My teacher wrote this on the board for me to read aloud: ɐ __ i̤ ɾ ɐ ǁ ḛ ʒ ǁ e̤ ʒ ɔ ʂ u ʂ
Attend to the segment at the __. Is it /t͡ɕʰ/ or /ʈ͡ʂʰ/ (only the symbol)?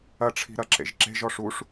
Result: ʈ͡ʂʰ